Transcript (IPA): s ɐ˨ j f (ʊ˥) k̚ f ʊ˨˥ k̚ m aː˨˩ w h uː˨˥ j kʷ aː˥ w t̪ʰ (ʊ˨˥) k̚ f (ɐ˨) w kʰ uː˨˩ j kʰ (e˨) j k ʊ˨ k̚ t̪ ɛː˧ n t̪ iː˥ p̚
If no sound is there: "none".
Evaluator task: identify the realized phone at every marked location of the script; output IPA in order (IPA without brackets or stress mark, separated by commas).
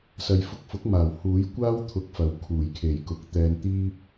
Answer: ʊ˧, ʊ˧, ɐ˨, e˨˩